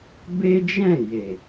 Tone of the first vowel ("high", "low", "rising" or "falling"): high